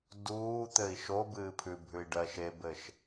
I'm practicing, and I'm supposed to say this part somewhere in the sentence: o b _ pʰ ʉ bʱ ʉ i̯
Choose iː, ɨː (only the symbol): ɨː